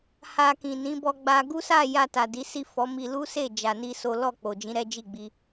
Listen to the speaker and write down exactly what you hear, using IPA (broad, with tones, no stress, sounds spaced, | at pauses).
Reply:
h a˧ k ĩ˨ n ĩ˨˦ b ɔ˦ ɡ͡b a˦ ɡ u˦ s a˦˨ j a˧ t a˨ d i˨˦ s i˦˨ f ɔ˨˦ m i˧ l u˦ s e˦˨ d͡ʒ a˧ n i˦ s o˦ l ɔ˦˨ k͡p o˨ d͡ʒ ĩ˨˦ ɾ ɛ˦ d͡ʒ i˦˨ ɡ͡b i˧